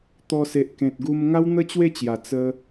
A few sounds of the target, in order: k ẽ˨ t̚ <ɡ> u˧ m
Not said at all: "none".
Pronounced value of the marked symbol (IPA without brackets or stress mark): ɡ